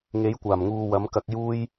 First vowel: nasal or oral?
oral